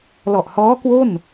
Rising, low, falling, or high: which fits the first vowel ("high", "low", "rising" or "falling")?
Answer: low